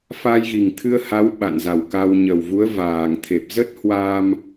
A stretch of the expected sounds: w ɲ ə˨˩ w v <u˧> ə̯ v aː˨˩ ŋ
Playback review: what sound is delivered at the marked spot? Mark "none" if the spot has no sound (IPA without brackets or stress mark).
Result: u˨˦